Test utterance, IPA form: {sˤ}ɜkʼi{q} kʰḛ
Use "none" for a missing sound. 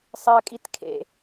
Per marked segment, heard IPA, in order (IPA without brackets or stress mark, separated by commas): sˤ, t